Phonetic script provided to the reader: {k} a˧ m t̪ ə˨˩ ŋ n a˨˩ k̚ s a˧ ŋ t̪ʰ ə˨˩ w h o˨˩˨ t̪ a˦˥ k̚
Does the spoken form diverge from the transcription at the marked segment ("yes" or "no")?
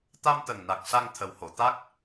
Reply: yes